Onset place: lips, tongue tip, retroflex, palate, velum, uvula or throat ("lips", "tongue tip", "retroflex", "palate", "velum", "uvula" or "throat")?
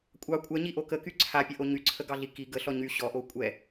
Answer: velum